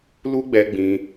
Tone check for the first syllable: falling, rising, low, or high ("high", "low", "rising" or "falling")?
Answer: high